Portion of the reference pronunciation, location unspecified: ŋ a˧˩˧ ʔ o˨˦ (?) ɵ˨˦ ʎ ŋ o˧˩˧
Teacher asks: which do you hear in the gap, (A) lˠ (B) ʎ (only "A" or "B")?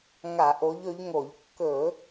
B